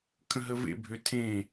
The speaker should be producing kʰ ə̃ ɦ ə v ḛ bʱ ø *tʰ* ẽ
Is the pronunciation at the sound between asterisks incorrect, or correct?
correct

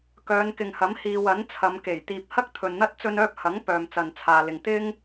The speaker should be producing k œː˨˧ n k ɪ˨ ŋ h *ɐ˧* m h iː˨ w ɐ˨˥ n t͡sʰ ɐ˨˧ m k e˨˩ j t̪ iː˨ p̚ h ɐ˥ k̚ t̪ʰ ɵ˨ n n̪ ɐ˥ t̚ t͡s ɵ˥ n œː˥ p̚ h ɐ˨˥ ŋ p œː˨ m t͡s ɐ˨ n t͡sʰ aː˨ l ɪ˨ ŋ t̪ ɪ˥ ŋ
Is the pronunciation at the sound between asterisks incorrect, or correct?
incorrect: ɐ˨˥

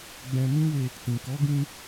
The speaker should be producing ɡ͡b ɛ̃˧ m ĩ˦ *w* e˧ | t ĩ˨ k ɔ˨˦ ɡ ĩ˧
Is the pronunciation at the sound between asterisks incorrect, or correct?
correct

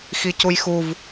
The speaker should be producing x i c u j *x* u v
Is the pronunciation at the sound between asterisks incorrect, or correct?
correct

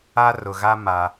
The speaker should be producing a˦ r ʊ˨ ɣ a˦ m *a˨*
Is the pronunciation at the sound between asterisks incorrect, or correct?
correct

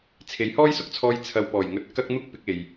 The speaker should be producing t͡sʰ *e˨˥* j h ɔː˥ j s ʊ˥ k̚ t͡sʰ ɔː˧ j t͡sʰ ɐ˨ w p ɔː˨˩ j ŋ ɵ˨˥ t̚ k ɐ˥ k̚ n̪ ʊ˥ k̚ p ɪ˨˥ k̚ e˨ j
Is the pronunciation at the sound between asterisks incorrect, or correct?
correct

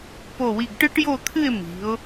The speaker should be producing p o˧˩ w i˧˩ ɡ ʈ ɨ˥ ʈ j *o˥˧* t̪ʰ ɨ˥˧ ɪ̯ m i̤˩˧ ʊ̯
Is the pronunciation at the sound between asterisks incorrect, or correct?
correct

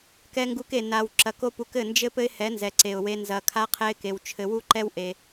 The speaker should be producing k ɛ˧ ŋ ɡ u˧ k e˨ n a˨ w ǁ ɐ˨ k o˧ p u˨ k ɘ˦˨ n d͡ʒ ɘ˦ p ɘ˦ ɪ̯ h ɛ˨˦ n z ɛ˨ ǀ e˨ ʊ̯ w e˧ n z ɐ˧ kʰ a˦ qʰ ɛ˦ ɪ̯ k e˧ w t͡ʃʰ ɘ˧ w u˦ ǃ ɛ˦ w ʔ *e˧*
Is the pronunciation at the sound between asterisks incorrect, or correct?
correct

